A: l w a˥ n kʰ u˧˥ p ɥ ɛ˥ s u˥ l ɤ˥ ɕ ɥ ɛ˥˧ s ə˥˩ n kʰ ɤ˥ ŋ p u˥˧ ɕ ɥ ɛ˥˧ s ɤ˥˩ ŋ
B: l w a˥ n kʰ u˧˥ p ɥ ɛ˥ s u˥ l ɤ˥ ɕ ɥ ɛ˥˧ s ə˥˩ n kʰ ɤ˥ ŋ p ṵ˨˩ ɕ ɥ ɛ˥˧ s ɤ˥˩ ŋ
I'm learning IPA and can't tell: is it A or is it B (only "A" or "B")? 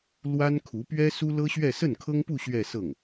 A